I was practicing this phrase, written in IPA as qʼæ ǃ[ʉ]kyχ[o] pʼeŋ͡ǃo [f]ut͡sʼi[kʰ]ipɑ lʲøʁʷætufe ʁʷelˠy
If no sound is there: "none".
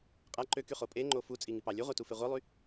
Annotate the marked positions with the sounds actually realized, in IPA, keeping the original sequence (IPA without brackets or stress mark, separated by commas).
ø, o, f, ŋ